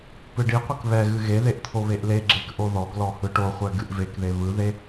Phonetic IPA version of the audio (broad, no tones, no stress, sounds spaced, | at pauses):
p ɨ ɖ i qʷ ɨ k β ɛ ɣ ɨ ɣ e ð e ʔ t̪ʰ o β e ʔ l e ɡ͡ǁ e k ʔ o ð ɔ ɡ l ɔ h ɯ ʈ o χʷ ɛ ɡ ɨ ʔ v e k ð e β ɯ ð e